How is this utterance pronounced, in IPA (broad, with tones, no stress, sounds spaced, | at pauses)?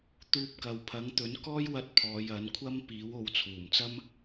t̪ uː˧ p̚ k ɐ˨ w pʰ ɐ˨˥ ŋ t̪ ɵ˨˥ n k ɔː˥ j w ɐ˧ t̚ pʰ ɔː˨˧ j ɐ˨˥ n kʷʰ ɐ˥ m p iː˨˥ w o˨ w t͡sʰ uː˨˩ m t͡s ɐ˥ m